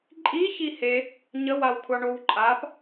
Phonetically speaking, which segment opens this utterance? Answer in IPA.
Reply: ǃʼ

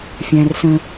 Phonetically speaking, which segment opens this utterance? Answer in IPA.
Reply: fʲ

